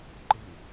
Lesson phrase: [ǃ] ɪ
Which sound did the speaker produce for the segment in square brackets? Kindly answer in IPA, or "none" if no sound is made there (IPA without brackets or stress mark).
ǃ